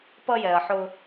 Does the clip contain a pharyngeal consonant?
yes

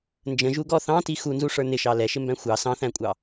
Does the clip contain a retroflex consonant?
yes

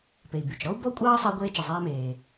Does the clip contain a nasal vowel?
no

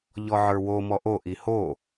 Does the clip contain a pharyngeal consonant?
yes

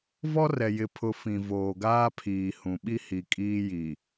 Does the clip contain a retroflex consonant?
no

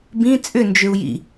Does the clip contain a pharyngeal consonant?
no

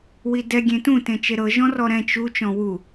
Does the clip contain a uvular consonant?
no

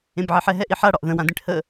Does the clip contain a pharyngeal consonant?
yes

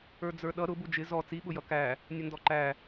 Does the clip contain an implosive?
yes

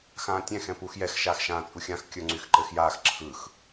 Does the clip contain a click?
yes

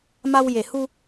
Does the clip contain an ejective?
no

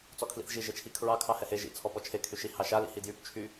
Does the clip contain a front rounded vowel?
yes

